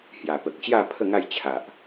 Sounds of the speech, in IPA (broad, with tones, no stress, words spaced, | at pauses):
hja˨˩pə˨k̚t͡ɕja˥˧ pʰə˥˧ŋa˥˧j t͡ɕʰa˨ʔ